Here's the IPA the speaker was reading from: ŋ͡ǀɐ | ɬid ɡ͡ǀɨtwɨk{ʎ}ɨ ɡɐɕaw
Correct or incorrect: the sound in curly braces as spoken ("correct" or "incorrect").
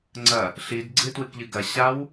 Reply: correct